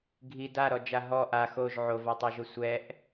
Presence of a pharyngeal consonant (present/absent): present